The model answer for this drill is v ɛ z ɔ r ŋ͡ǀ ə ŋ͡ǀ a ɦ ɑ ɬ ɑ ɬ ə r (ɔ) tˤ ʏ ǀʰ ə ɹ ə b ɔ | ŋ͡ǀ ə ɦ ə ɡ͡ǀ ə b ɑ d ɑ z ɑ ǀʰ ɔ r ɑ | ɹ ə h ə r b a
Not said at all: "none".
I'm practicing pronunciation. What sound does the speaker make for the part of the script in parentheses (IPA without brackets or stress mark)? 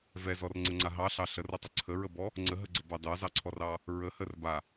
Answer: ʌ